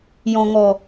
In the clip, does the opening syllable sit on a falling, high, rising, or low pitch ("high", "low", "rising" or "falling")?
low